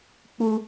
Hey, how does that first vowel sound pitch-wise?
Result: high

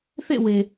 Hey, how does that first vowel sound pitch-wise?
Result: falling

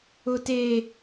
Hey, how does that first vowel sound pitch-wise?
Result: high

